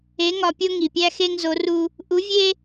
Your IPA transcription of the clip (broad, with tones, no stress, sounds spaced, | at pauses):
e˧˥ ŋ ɒ˧ pʲ o˥ ŋ i˩ pʲ æ˥ x e˥ ŋ z o˧˥ r u˥ | ʔ u˧˥ vʲ e˥